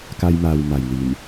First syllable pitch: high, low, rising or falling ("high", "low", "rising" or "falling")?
high